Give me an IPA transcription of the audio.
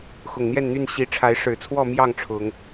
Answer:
x ʊ˨˩ ŋ n̪ j ɛ˥˨ n n̪ y˥˨ n ɕ i˨˦ ʈ͡ʂʰ a˨˦ ɪ̯ ʂ ɻ̩˨˩ t͡sʰ w ɔ˥˨ m j ɑ˥˨ ŋ ʈ͡ʂʰ ʊ˨˦ ŋ

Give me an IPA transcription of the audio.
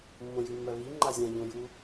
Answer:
mː õ j ʉ mː ɜ β i ŋ͡ǃ a zʲ ã ʎ õ j u

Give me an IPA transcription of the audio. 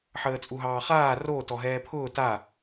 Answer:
ħ əː t͡sʼ u ɦ ɑː χ aː r o t ɔ ɦ ɛː pʰ ʊː t a

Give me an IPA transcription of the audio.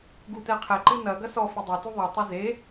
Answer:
ɡ u t ɛ qʰ ɛ ǃ ɨ n ɐ ɡ ɐ s ɔ f ɨ dˤ ɛ t u ðˤ ɨ tˤ ɨ z e

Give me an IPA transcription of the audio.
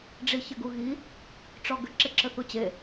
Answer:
ɖ͡ʐ i ç ɘ ɡ u ɣ i | ʈ͡ʂ ɔ ɡ ɘ ǁ e ǁ ɘ θ u t͡ɕ e

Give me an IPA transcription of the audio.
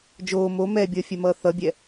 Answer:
d͡ʒ oː m o m ɛ bʲ ʌː fʲ ɛ m ʌː θ ʌ bʲ ɛ

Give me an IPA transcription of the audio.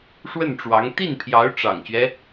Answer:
ʂ w ə˥˩ n ʈ͡ʂ w ɑ˧˥ ŋ t̪ i˥˩ n pʰ j ɑ˧˥ ʊ̯ ʈ͡ʂ ɑ̰˨˩ ŋ ɕ ɥ ɛ˦

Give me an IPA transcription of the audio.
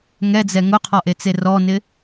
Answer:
ŋ ɛ d͡z ɛ ŋ ʊ qʰ ɔ ʔ e t͡s e r ɔ n ɪ

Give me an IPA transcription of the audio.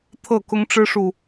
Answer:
t̪ʰ ɤ˥˨ k ʊ˦ ŋ ʈ͡ʂ ɻ̩˦ ʂ u˨

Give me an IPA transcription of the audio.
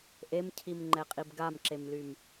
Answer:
ʔ e m cʰ i m ŋ͡ǃ ɛ qʼ i b ɡ a m ǁ e m l y m

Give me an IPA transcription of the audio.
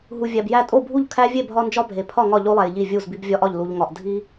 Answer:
ɦ u˨ vʲ æ˨ b j æ˥˨ tʼ o˥˨ bʱ u˥˨ ʎ kʰ æ˦ vʲ e˥˨ bʱ ɒ˦ n d͡ʒ ɒ˦ bʱ e˨ pʰ ɒ˥˨ ŋ ɒ˥˨ ʎ o˦ lˠ æ˨ j ʎ i˥˨ vʲ u˥˨ z b i˦ b vʲ ɒ˦ ʔ ɒ˥˨ ʎ l u˦ ʎ ŋ ɒ˦ ʔ dʱ i˦

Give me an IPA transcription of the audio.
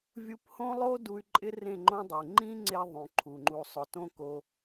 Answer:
vʲ u˧ p h õ˦ lˠ o˦ d u˧ y̯ ǃʼ ɪ˦ r ẽ˦˨ ŋ͡ǃ õ˦ dˤ e˨ ŋ͡ǃ ĩ˦ ŋ͡ǀ e˧ ðˤ ũ˨ ǃʰ u˨ ŋ͡ǃ u˨ sˤ ʊ˨ t õ˧ k o˧

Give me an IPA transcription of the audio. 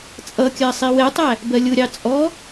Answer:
t͡sʼ ʌ kʲ ɜ sˤ i w ɛ tˤ æ | b ɜ lʲ ʊ ɾʲ ɑ t͡sʼ ɔ

